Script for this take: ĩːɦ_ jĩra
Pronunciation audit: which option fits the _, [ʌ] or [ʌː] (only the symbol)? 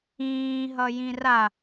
ʌ